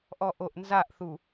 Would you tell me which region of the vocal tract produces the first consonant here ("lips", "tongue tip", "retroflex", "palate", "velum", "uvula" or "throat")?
throat